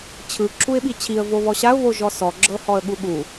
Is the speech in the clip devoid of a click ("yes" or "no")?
no